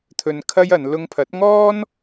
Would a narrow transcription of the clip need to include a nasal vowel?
no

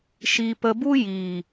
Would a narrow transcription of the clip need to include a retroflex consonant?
no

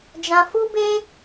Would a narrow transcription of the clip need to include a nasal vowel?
yes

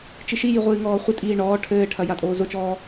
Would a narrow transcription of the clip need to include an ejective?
yes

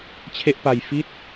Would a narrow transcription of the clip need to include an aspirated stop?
yes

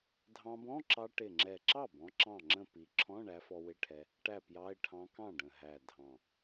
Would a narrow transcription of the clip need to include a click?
yes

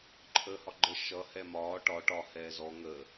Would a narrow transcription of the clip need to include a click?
yes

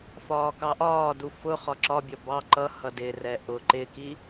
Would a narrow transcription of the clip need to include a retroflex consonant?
no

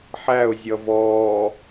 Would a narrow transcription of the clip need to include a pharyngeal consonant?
yes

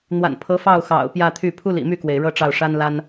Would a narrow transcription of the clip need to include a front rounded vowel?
yes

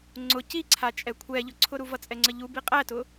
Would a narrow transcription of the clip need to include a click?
yes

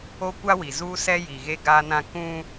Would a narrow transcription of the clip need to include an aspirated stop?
no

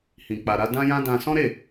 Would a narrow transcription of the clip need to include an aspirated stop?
no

